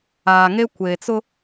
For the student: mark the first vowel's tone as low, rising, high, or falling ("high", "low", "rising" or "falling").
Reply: low